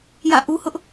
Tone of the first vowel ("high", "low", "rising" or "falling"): falling